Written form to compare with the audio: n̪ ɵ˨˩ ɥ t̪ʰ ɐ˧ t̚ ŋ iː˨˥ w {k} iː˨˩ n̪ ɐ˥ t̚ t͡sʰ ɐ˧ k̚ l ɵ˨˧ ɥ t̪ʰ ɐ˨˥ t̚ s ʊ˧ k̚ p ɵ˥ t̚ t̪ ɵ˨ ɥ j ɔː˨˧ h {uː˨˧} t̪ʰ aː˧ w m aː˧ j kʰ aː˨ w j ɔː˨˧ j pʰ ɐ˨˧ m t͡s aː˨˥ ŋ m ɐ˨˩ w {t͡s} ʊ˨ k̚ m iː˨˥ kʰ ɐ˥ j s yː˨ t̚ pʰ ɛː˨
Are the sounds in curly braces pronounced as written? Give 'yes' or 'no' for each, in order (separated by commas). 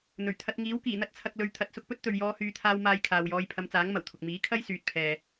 yes, no, no